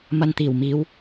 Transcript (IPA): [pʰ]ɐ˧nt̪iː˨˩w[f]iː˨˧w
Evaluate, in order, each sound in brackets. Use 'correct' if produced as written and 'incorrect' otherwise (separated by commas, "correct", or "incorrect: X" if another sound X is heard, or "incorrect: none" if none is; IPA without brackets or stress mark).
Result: incorrect: m, incorrect: m